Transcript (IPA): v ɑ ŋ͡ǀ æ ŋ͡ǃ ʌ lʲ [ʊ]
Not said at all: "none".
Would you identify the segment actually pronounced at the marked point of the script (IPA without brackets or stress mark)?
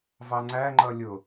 ʊ